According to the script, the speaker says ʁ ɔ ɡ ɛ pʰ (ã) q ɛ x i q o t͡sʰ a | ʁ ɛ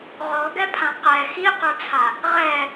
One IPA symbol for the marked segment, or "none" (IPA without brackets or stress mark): ã